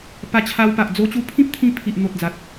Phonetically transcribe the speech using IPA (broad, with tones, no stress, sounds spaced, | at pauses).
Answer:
p a˧ t͡ɕʰ a˧ w p a˨ ʔ d͡z o˧ t͡ɕ u˧ pʰ ĩ˦ p̚ t̪ʰ ĩ˧ pʰ i˨ ʔ n̪ o˨ t̚ d͡z a˨ t̚